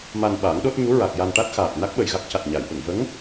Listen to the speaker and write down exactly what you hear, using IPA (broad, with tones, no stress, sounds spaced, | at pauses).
m a˧ n ɓ aː˨˩˦ ŋ ɗ o˦˥ t̚ ɲ u˧˥ ɹ a˨˩ k̚ j a˧ n ʈ a˦˥ t̚ x aː˨˩ t̚ n a˦˥ k̚ ɓ ə˨˩ j ɣ a˦˥ k̚ c a˨˩ t̚ ɲ a˨˩˨ j ɓ ə˨˩˨ ŋ v ə˧˥ ŋ